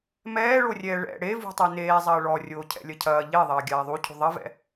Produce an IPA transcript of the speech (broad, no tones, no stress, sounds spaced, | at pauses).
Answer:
m ɛː ɭ o rʲ ɛː ɭ ɛ̰ ɽ e v ṳ tˤ o n eː zˤ ɐː ɭ ɔ rʲ oː cʰ ɛ̰ lʲ ɐ cʰ ɐː ʎ e ðˤ ɐː ɡʲ aː ðˤ u cʰ ṳ ðˤ ɐ v ɛ̰